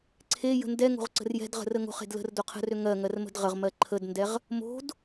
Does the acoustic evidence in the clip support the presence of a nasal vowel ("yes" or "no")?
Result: no